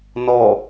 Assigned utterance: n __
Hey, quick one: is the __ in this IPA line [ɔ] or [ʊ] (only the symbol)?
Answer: ɔ